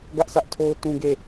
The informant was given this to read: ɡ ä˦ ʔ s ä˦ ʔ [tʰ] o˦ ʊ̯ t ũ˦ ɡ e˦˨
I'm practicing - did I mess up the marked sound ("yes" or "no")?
no